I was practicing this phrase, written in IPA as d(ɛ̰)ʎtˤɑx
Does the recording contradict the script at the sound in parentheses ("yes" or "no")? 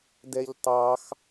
yes